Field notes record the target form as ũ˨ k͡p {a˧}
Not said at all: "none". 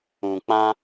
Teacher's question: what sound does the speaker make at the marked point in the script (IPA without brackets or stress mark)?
ã˧